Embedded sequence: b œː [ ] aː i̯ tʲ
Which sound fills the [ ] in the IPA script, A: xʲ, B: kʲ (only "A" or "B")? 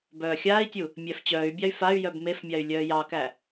A